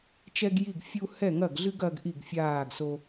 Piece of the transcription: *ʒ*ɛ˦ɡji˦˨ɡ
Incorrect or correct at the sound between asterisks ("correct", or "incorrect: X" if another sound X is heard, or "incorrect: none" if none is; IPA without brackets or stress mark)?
incorrect: t͡ʃ